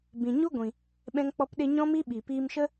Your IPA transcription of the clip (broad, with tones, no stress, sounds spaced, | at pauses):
b ĩ˨ ɲ u˦ ɡʷ ĩ˨ | ɓ ɛ̃˦ ŋ k͡p ɔ˦ p ɗ e˦ ɲ ɔ̃˦ m i˦ ɓ i˨ p iː˧ m ʃ ə˦